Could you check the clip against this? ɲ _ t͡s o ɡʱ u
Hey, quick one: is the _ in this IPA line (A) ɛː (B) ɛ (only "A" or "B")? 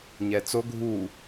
B